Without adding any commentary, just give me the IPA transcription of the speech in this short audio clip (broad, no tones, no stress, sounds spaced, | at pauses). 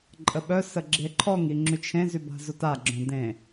ǃʼ ə ɓ œ s ə ɡ͡ǁ e ǃʰ ɔ ŋ i ŋ͡ǁ y t͡ʃʰ ẽ z y b a̤ z o t a ɡ͡ǁ œ̃ d ẽ